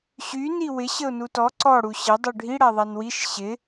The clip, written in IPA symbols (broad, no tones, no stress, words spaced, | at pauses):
ɕy niwɪ ɕəʊ̯nutɔ ǀɔ ɽuɕə dˤuɖʱi ɽaðˤanwiʃ ɕɪ